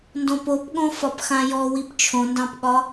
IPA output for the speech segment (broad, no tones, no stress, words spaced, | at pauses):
ndõpopɠõ fɒpxãjɔ wipt͡ʃʰõndɑ̃pɠɒ